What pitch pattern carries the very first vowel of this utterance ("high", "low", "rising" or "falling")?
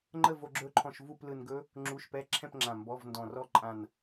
falling